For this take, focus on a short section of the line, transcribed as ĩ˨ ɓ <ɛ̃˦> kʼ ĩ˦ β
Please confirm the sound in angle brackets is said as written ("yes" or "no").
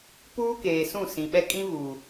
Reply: no